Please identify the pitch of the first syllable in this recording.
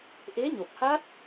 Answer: rising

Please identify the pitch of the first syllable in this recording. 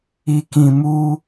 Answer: low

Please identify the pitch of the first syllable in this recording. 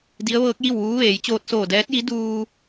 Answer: rising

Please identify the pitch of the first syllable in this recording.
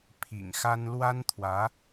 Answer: low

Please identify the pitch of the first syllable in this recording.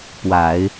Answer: low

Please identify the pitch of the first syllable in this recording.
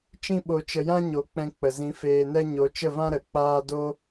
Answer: high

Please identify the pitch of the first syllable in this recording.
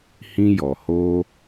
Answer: high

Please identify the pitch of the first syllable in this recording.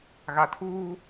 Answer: low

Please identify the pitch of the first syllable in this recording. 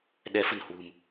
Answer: rising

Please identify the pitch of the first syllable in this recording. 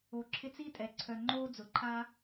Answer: low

